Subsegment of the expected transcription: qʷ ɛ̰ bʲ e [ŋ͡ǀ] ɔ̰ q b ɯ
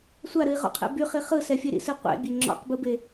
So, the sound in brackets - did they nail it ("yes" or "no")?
no